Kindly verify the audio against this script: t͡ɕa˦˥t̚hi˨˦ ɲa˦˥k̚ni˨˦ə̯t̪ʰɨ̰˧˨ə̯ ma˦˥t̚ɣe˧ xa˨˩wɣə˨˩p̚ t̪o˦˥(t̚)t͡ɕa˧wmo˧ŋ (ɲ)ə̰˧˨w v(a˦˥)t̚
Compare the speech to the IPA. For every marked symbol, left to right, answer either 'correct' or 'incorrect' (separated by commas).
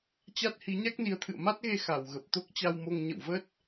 incorrect, correct, incorrect